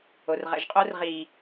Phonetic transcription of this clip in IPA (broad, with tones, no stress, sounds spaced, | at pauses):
o˨ r ʁ ɛ̰˨ ʒ qʼ o˦ r ʁ i˨